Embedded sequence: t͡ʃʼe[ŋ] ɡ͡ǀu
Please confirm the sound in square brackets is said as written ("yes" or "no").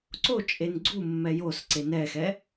no